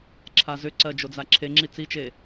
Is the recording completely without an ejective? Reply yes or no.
yes